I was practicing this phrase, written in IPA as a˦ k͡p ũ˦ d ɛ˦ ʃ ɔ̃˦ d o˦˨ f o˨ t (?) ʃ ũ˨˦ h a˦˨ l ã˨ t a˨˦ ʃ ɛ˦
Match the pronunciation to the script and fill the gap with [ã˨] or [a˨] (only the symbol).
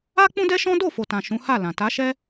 ã˨